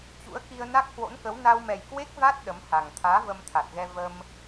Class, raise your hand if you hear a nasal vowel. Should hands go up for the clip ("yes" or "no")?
no